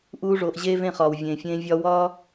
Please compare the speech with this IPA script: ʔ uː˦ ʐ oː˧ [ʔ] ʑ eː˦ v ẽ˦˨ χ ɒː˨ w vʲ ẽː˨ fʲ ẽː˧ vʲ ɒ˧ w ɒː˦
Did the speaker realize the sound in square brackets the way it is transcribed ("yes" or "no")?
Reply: yes